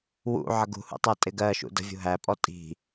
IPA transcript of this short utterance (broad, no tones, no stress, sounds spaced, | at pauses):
w ṵ ʕ ʌ ɡ ṳ h ṵ tˤ ɜ tʼ ɪ ɡ ɜ ʃ ṵ d ə̤ vʲ ṳ ɦ æ pʼ ɔ tʼ i̤